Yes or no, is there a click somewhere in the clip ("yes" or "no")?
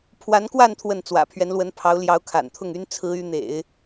no